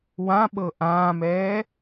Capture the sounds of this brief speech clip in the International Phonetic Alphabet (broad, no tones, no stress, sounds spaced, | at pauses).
w ã ɓ ɤ ʔ ãː m ɛː